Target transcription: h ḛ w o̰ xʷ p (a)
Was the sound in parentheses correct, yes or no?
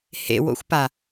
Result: yes